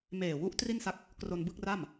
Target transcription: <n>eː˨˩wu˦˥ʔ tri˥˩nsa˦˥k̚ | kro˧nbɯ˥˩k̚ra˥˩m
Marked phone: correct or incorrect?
incorrect